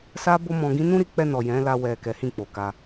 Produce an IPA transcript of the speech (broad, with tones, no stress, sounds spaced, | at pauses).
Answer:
s a˦ b o˦ m ɔ̃˧ ɡ ĩ˦ n ũ˦ ɾ i˧ k͡p ɛ˧ n ɔ˨ j ɛ̃˨˦ l a˧ w ɛ˨ k ɛ˨˦ h ĩ˦˨ k͡p o˨ k a˧